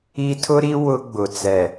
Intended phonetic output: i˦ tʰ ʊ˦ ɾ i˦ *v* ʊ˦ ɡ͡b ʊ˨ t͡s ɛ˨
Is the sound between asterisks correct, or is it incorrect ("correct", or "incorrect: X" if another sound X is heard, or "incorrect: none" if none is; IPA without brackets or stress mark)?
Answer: incorrect: w